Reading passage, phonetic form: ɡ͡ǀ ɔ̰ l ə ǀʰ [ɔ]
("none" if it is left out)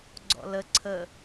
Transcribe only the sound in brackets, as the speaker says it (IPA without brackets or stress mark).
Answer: ə